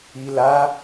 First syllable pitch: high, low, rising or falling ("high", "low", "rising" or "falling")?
low